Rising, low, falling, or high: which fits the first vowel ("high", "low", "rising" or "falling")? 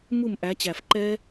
falling